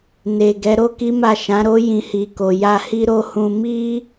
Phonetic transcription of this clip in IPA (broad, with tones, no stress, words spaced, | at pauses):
ne˨ ɡɛ˨˦ɾo˦ki˦ma˦˨ ʃã˨˦ɾo˦ jĩ˧hi˨ko˨ ja˧hi˦ɾo˦hũ˧ mi˦